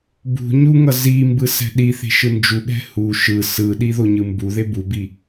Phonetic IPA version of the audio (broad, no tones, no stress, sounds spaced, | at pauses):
b ṳ ɲ u ŋ ʌ z i m b ɯ s ɛ̤ ɗ i θ e̤ ʃ ɯ n d͡ʒ u ɠ ɛ̤ h u ʃ ɯ s ɯ ɗ i ð o ɲ ɯ m b u ð e b u b i